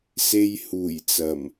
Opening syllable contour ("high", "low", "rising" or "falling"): high